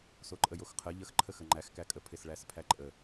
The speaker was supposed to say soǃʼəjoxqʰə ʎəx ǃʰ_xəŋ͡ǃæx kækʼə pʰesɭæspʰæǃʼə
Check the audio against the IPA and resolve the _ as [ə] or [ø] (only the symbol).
ə